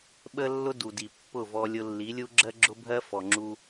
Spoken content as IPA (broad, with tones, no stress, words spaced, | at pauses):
ɓə˦lːʊ˦ du˨di˨ pːʊ˦˨vɔ˧ lʲʊ˧lːi˨˦lʲu˦ ɡ͡ǁɜ˦ɡ͡ǁʊ˦bʱɜ˦ fɔ˨ŋ͡ǁu˧